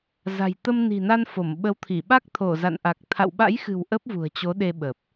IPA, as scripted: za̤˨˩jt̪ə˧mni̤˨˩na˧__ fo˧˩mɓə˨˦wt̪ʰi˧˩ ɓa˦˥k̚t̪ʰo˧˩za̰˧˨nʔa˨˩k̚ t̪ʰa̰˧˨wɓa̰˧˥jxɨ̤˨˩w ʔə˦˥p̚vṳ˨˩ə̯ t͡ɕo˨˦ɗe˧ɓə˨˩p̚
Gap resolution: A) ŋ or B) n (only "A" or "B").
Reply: B